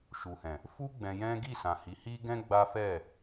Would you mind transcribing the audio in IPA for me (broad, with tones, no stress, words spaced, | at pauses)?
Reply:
ʃu˨hɛ̃˨ | fu˦ ɡ͡bɛ̃˧jɛ̃˦ ɡi˦˨sã˨ hi˨˦hi˦ ɡɛ̃˦ ɡ͡ba˦fɛ˦˨